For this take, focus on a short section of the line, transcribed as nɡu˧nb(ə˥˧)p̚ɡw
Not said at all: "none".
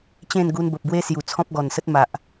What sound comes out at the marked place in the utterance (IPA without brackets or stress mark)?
ə˨